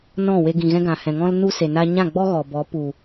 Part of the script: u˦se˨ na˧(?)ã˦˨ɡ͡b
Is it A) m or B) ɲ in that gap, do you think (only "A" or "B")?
B